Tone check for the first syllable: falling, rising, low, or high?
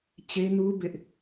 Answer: high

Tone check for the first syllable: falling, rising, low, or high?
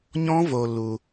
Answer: high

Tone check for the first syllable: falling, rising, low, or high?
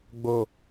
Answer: low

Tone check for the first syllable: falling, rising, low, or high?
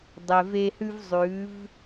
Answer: low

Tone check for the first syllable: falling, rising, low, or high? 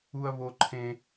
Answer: high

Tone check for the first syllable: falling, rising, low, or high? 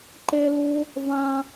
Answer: high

